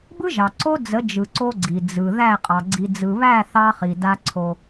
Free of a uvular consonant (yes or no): no